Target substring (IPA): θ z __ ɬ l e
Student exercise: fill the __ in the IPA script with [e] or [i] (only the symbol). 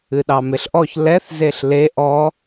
e